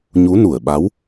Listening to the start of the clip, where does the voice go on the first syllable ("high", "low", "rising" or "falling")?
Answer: rising